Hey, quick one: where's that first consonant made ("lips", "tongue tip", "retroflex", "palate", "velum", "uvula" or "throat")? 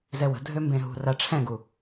tongue tip